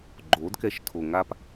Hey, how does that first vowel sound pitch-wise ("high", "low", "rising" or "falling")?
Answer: rising